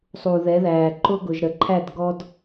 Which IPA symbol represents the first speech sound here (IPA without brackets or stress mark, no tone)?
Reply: sˤ